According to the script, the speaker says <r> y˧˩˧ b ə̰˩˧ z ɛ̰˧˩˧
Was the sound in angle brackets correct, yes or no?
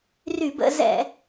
yes